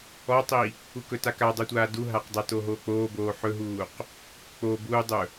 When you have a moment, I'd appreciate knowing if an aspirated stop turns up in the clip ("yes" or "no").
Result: no